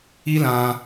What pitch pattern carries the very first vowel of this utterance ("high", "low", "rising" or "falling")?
high